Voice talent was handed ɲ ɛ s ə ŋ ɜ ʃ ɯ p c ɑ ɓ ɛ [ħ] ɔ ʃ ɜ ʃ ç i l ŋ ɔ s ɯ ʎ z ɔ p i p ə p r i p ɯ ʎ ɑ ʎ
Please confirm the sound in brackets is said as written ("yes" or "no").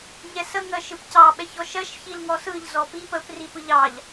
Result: no